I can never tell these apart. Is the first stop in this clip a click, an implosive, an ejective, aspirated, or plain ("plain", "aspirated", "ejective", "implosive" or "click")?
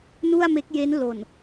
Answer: plain